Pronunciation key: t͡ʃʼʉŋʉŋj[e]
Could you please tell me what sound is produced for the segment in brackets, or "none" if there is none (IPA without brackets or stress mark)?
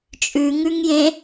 ẽ